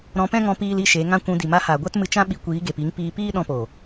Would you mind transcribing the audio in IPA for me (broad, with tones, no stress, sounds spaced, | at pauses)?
ɾ ɔ̃˧ p ɛ̃˦ ŋ ɔ̃˧ p iː˦ l i˦ ʃ e˨˦ ŋ ã˦ kʷ ũ˧ d i˨ m a˧ h aː˨ ɡʷ a˦ t m ɨ˧ t͡ʃ ã˦ ɓ i˧ kʷ iː˨˦ ɡ e˨ p i˨˦ ŋ p iː˧ p iː˦ ɗ ɔ̃˧ p oː˨